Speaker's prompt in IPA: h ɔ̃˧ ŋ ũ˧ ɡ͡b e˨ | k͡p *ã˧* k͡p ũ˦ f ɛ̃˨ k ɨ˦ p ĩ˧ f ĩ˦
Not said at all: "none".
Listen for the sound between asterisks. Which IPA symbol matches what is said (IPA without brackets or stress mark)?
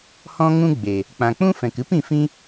ã˨